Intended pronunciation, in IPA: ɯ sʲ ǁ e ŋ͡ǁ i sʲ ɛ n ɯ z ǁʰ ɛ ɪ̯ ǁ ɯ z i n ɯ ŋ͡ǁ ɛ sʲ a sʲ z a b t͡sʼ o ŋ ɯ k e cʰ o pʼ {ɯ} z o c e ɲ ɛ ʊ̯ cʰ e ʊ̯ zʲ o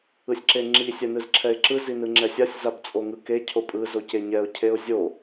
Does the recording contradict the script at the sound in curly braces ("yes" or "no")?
no